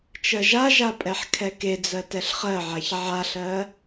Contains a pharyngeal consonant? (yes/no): yes